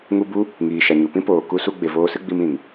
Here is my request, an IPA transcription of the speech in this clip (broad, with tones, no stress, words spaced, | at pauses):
ŋu˦ bu˦ | ŋiː˨ ʃa˨ɲu˨pĩ˦poː˨ ku˧su˧ ɡ͡be˨voː˧sɨ˦ɡ͡bi˧m ĩ˨ŋ